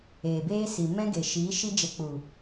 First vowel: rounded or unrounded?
unrounded